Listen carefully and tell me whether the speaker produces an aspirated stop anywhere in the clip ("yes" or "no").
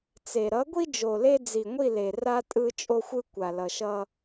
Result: no